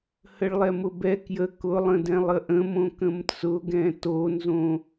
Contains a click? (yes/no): no